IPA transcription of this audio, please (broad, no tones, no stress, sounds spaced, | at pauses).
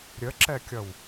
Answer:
ɾʲ ə ǁ ɛ kʲ ʌ w